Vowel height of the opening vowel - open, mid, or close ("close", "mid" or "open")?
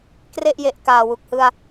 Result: mid